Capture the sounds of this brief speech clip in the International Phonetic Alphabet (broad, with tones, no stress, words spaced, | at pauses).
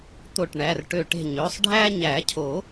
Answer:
t̪o˧˩ʈɳæ˩˧˩rʈø˧˩ ʈe̤˧˩ɲø˩˧˩sˤ ɖʱæ˦ɲæ˨˩˦cʰo˨˩˦